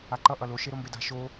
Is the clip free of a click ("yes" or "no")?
no